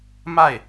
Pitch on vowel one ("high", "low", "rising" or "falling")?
falling